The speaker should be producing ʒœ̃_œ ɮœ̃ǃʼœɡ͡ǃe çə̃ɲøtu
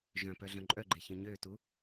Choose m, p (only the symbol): p